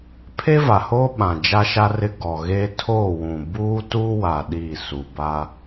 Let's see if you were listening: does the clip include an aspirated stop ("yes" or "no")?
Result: yes